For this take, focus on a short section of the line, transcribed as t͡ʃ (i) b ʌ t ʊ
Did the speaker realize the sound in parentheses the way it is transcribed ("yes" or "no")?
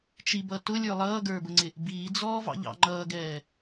yes